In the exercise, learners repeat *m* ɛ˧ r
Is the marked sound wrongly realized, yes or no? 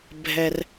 yes